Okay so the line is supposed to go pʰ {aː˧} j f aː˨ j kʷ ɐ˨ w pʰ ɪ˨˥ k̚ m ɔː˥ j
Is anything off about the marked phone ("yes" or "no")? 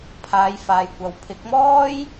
yes